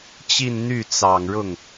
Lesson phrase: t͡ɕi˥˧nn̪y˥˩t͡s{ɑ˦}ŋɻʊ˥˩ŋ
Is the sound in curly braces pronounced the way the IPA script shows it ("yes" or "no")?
no